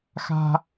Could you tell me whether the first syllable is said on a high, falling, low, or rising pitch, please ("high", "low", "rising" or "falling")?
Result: low